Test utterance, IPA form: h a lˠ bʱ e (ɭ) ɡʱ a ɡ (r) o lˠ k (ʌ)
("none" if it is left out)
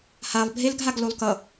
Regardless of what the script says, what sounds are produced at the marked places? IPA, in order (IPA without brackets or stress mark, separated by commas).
l, l, ʌ